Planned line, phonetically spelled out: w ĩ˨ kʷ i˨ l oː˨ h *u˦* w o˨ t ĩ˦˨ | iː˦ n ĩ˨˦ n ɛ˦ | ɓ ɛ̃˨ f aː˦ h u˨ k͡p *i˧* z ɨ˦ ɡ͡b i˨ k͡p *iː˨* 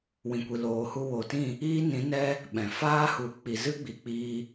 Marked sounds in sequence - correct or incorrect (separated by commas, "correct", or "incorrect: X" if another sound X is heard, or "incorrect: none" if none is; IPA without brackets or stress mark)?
incorrect: u˧, incorrect: i˨, incorrect: iː˧